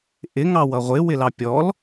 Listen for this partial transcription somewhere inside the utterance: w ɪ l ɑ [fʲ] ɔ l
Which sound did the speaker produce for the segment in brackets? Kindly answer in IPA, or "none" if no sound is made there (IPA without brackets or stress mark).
pʲ